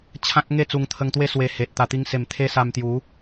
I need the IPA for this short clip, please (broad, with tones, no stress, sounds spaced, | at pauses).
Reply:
t͡ɕʰ ã˦ k̚ ŋ e˥˧ t͡s u˧ ŋ t̪ʰ ə˧ ŋ t̪ w e˦ s w e˧ h e˨ t̚ t̪ a˨˩ t̪ i˧ ŋ s e˨˩ m t̪ʰ e˦ s a˧ m t̪ j u˨˦